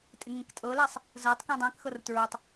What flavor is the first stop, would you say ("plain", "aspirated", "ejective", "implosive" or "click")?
ejective